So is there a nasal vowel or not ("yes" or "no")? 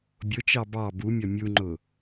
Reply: no